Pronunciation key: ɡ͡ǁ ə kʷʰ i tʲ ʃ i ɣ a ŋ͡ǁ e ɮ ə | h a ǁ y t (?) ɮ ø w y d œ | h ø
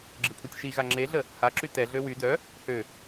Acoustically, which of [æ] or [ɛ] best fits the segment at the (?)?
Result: ɛ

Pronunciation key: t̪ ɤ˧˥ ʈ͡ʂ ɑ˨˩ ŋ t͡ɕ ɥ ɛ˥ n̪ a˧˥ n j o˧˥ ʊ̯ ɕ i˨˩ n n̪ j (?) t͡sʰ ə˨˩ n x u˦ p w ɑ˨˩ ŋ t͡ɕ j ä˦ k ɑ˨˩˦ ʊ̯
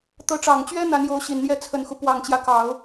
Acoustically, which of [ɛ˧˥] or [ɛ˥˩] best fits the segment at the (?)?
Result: ɛ˥˩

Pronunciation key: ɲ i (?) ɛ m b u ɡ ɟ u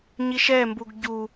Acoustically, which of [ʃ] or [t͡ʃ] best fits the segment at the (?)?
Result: ʃ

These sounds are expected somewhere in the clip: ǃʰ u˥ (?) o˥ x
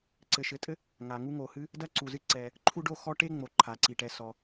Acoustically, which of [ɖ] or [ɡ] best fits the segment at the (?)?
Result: ɖ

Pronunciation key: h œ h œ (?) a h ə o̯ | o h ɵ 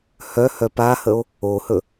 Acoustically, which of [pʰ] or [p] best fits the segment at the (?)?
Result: p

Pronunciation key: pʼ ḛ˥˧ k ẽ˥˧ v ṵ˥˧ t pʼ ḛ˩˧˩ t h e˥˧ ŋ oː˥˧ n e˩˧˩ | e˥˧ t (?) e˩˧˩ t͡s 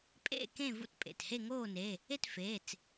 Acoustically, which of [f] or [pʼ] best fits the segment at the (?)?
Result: f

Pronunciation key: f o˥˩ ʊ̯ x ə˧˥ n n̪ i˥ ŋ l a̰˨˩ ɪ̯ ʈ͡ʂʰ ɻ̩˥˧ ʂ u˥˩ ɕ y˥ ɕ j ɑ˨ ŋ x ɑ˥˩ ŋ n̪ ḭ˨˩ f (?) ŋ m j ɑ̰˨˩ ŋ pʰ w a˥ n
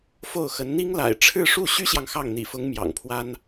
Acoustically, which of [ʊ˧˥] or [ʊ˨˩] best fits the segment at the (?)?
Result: ʊ˧˥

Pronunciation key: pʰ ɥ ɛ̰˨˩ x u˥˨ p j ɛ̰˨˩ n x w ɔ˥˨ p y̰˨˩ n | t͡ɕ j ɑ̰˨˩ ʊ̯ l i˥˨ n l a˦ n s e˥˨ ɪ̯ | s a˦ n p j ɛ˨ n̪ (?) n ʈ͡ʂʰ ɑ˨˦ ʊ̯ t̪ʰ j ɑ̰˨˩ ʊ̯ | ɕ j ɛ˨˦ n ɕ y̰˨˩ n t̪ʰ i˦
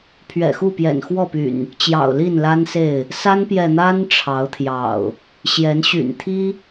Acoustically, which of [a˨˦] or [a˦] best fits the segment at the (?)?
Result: a˦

